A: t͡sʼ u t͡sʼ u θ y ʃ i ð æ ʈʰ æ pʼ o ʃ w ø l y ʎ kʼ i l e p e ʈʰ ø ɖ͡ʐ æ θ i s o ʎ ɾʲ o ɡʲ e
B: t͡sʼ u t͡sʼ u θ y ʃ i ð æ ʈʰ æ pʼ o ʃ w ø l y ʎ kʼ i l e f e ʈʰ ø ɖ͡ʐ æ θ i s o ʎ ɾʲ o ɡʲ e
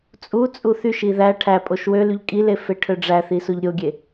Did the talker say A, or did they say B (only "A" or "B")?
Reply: B